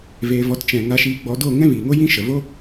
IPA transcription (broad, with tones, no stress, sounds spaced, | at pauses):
v eː˧ v ɔ˧ t t͡ʃ ɛ̃˨ ŋ a˧ ʃ iː˧ ɡ͡b ɔ˧ d o˦˨ ŋ ɛ̃˦ v iː˨ ŋ o˦ j ĩ˦ ʃ ə˨ v o˦